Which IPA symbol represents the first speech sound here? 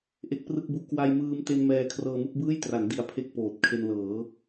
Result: ʔ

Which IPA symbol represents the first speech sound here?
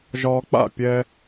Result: ʒ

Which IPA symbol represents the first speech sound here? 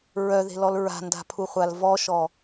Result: ɹ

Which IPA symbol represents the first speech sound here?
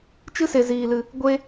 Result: t͡ʃ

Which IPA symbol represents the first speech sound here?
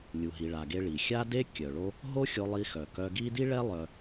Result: lʲ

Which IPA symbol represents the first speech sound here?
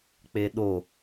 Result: k͡p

